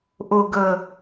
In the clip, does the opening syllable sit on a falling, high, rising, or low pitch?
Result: low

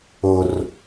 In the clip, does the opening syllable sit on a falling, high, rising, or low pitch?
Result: high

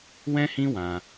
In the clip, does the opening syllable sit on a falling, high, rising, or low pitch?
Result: high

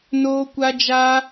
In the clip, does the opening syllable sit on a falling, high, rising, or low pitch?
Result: high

